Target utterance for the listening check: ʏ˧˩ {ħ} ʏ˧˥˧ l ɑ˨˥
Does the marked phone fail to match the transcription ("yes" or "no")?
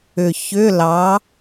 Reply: yes